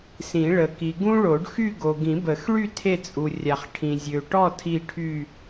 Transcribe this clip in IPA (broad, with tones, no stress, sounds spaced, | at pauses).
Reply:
s ĩ˨˩˦ ɭ ə˨ k i˨ ɡ ũ˥ ɭ o˨˩˦ ɖ x y˥˧ ɡ o˨ ɡ ĩ˨˩˦ b ə˨˩˦ x ɭ y˥˧ tʰ e˥˧ t͡sʼ u˨ rʲ a˨ χ ʈʰ ĩ˨ zʲ ø˨ ʈ ɔ˥˧ tʰ i˥˧ ʈʰ y˥˧